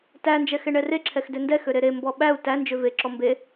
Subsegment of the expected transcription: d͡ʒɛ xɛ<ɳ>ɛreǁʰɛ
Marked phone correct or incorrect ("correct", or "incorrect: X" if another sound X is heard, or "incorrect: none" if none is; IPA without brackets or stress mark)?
correct